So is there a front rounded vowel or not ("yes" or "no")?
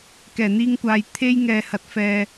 no